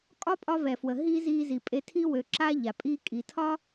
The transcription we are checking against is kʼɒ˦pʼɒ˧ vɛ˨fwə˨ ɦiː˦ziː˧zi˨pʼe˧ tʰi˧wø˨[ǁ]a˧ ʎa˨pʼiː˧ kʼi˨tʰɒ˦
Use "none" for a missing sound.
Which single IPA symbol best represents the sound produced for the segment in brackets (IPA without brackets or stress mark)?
ǁ